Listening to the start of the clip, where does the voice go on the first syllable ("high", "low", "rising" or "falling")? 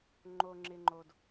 low